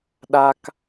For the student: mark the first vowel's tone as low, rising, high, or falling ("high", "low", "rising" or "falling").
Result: low